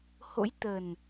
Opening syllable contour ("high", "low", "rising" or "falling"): rising